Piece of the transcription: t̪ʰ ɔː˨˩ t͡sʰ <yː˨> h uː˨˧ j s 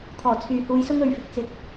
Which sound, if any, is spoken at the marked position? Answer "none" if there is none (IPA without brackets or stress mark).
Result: yː˨